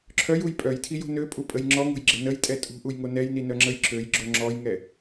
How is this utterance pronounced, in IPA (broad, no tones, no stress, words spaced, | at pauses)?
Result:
ǁʰœjuj pʼœjtʰijo̤ nøpʼupʼəj ŋ͡ǁɔŋo̤jɡ͡ǁə nəjtʼɛ tʼṳʔujŋo nɛjninœŋ͡ǁəj ǁøjɡ͡ǁo ŋ͡ǁɔjŋɛ